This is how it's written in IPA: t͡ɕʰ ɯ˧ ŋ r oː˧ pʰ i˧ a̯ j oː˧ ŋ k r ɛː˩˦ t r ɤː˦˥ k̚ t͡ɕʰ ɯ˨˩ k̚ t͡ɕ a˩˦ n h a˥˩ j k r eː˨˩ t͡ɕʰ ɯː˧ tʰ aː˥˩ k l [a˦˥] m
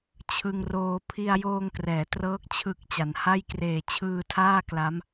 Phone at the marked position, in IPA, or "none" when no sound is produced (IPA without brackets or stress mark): a˦˥